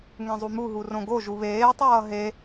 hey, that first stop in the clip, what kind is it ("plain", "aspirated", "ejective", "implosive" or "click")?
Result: plain